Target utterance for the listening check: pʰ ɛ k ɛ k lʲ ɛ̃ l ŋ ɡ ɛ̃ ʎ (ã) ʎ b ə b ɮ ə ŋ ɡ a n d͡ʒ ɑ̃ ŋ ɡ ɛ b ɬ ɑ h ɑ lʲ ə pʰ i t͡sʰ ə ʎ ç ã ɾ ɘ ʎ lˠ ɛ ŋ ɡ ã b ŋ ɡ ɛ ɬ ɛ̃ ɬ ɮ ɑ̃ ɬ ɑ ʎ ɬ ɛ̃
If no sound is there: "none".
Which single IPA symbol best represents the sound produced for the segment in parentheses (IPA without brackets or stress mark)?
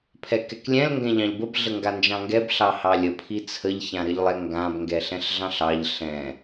ɑ̃